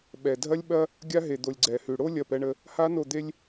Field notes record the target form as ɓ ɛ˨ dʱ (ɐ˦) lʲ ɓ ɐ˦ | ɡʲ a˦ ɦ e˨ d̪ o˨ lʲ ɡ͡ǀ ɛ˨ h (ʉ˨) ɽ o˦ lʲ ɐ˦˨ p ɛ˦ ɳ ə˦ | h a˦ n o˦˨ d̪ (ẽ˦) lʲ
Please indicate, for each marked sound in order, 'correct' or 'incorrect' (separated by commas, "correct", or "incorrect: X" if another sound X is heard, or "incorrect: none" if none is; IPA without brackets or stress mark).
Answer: correct, correct, incorrect: e˦